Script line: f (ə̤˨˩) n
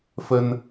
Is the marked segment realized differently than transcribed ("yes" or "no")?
yes